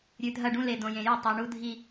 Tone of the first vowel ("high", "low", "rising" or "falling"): low